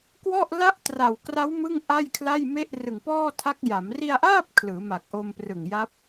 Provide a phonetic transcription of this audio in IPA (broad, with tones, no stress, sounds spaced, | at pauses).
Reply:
k w ɔ˥˩ ʔ l a˦˥ ʔ t r a˨˩ w k r a˦˥ w m ɯ˥˩ ŋ ʔ a˥˩ j kʰ l a˥˩ j m e˥˩ ʔ r ɯ˨˩ ŋ p ɔː˥˩ tʰ a˦˥ k̚ j a˩˦ m r i˧ a̯ ʔ aː˥˩ p̚ kʰ l ɯː˩˦ m a˨˩ k̚ ʔ o˧ m p r ɯ˨˩ ŋ j a˦˥ p̚